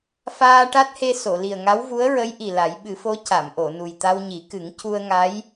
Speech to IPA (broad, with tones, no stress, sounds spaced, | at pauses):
f aː˧ ʈ a˦˥ t̚ h e˧ s o˨˩˨ l i˨˩ ə̯ ŋ a˧˥ w v u˧˥ ə̯ ɹ ə˧˥ j ʔ i˨˩ l a˨˩˦ j ɓ ɨ˨˩˦ f o˧˥ c a˨˩˨ m ʔ o˨˩˨ n u˨˩ j t̪ a˧ w ɲ i˨˩˦ k ɨ˨˩˦ ŋ c u˧ ə̯ ŋ a˧˥ j